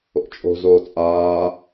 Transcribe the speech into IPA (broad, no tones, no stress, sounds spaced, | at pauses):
o̰ t͡ʃʼ o̤ z oː t͡sʼ aː